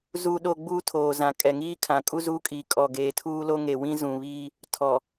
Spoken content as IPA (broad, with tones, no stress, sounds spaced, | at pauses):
z uː˦ ɗ oː˦ ɡ͡b uː˦ tʰ oː˨ z ã˨ kʼ ɛ˨ ŋ iː˦ kʰ ã˨ kʼ u˦ z u˦ kʼ i˨ kʼ ɔ˨ ɡ eː˨ tʰ uː˦ l o˦ ŋ e˨ w ĩ˦ z ũ˨ β iː˦ | tʰ ɔ˨